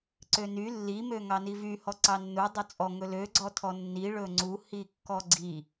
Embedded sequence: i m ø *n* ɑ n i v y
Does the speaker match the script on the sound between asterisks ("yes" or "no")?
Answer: no